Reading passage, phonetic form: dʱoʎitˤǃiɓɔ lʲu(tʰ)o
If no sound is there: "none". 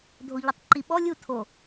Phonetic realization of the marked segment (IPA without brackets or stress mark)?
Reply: tʰ